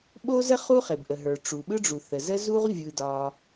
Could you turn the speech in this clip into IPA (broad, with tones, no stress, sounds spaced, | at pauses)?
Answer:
ɓ o˥ z ə˥ χ u˥ χ e˩ b ʔ ə˩ ɦ ə˞˩ ʈ͡ʂ u˩ ɓ ɯ˥ ɖ͡ʐ u˩ θ ə˩ z ə˥ z u˥ ʁ vʲ ɯ˩ d ɒ˩